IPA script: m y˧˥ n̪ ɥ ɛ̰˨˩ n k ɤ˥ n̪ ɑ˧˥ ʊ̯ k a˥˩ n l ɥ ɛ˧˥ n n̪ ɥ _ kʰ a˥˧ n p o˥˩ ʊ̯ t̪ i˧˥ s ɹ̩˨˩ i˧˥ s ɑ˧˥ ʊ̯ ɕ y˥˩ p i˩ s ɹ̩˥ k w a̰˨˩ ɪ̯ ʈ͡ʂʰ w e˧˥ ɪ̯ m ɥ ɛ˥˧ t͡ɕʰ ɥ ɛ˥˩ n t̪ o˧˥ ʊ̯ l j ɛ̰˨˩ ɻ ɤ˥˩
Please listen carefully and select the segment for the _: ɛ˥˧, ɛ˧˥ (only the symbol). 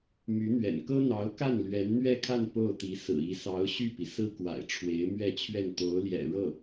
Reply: ɛ˥˧